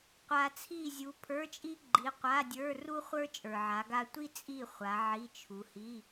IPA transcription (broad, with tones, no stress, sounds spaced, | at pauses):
qʷ a˨ t͡sʰ i˦˨ zʲ u˨˦ pʰ ə˞˧˥˧ t͡ʃʼ i˥ ɡ͡ǃ i˨˦ qʷ a˧˥˧ dʲ ə˞˧˥˧ r u˥ χʷ ə˞˥ t͡ʃʼ ə˞˨ ʕ a˨˦ ɡ a˥ tʷ i˥ t͡sʼ i˦˨ χʷ a˨˦ ʕ i˧˥˧ t͡ʃʰ u˨˦ h i˧˥˧